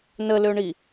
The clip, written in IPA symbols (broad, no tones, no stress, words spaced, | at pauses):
nəløɳi